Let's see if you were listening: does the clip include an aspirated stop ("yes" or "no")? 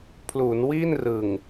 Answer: yes